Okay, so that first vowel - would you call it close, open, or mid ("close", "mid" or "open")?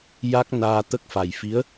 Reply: open